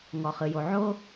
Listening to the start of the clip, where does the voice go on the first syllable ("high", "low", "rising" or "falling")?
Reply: low